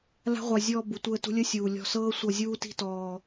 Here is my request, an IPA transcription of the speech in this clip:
l a̤˦ ʁʷ a˧ zʲ ɔː˧ b u˨ tʷ əː˧ t ṳ˧ lʲ ə˦ sʲ uː˨ lʲ ɔ̤˧ s ɤː˦ sʷ ʌ˧ zʲ uː˧ t i̤˧ t ɔː˧

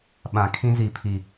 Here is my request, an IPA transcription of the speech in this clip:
ɓ ã˨ kʰ ĩ˦ z i˨ pʰ i˨

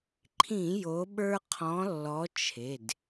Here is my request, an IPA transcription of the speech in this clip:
ǃʰ ĩ˧˩˧ j o˨˦ ɓ ə˞˦ qʰ ɔ̃˨˦ lː ɔ˨˦ t͡ʃʰ e˩˧˩ d

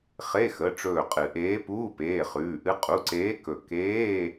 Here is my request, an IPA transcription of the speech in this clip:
χ e˧˥˧ x ə˩˧˩ ʈ͡ʂ ɵː˧˩ qʼ ɨ˨˩˦ ʔ eː˧˥ p uː˧˥˧ p eː˩˧˩ χ ʉː˩˧˩ ʔ ɨ˧˥ qʼ u˩˧˩ ǀ eː˧˥ k ɵ˧˩ k eː˧˥˧

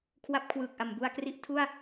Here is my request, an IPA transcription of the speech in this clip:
kʰ w a˥˩ p̚ kʰ w ɯː˨˩ k̚ ʔ a˩˦ m b u˧ a̯ k r i˥˩ ʔ tʰ u˥˩ a̯

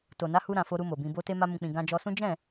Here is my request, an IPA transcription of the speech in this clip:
t o˨ n a˨˦ h u˧ ɾ ã˨ f o˧ ɾ u˧ m o˨ b ĩ˧ b o˧ t e˧ m a˧ m ũ˨ k͡p ĩ˨ ɡ ã˧ d͡ʒ ɔ˧ s ũ˦ d͡ʒ ɛ̃˦˨

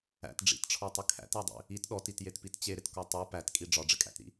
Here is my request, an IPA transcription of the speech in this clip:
æ̰ t ɖ͡ʐ ḭ t ʈ͡ʂʰ ɔ tˤ ɪ kʰ æ̰ t æ dˤ ḭ | i t ɗ ɔ t i t j e t p i t t͡ɕ e ɾ ɪ t k ɔ tˤ u p æ t kʼ i ɖ͡ʐ ɒ ɖ͡ʐ ɪ kʼ æ̰ t ɾ ḭ

